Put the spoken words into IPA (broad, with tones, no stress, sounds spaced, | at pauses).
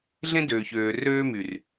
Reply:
ɮ ẽ˦ d øː˨ ç øː˨ r øː˦ m y˨ r